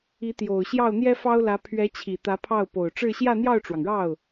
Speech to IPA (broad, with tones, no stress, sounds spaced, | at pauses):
i˧˥ t̪ j o˨˩ ʊ̯ ɕ j ɑ˥˩ ʊ̯ n̪ j ɛ˥ f ɑ˥ ʊ̯ l ä˧˥ pʰ ɥ ɛ˧˥ t͡ɕʰ i˨˩ t̪ ä˧˥ pʰ ɑ˥˩ ʊ̯ p o˨˩ ʊ̯ ʈ͡ʂ ɻ̩˥˧ ɕ j ä˥˧ n̪ j ɑ˥˩ ʊ̯ ʈ͡ʂ w ɑ˩ ŋ ɻ ɑ˥˩ ʊ̯